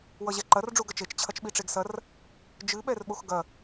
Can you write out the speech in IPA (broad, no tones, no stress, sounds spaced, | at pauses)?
w ʌ ʑ ɛ ǃ ɐ r ɖ͡ʐ u ɡ ɐ t͡ʃ e t͡ʃ t͡ɕʰ ɐ t͡ʃ ɓ i ʈ͡ʂ e ɡ s ɐ r | d͡ʒ ɨ ɓ ɛ r ɓ o x ɡ ɐ